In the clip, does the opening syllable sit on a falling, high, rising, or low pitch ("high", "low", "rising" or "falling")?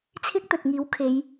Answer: high